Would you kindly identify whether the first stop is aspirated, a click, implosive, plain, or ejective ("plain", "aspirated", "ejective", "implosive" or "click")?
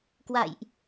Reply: plain